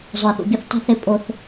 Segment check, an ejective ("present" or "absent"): present